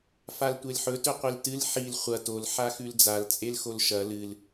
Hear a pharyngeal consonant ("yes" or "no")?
yes